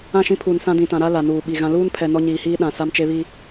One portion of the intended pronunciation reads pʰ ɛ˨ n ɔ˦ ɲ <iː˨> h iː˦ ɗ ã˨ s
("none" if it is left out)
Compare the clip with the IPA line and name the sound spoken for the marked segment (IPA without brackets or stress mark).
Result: iː˨